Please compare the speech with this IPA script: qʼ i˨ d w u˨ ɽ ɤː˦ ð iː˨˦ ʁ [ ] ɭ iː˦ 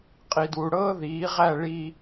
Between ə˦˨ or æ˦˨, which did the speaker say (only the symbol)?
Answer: æ˦˨